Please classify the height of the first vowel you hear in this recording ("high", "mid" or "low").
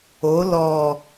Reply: mid